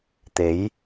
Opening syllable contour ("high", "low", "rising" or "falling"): rising